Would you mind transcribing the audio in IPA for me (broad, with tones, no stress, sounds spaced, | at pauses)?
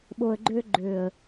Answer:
ɓ o˨ ə̯ ɡ͡ǃ ø˧ ɡ͡ǃ ø˨ ə̯